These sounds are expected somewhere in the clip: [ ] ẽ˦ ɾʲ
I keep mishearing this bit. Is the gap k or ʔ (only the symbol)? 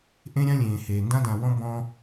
ʔ